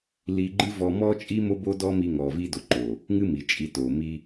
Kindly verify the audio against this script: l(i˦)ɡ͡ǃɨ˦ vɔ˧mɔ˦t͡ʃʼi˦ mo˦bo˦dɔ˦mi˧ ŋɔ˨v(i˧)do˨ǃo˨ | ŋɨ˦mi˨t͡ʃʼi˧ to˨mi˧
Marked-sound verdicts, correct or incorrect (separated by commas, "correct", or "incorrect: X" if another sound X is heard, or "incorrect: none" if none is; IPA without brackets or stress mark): incorrect: i˧, correct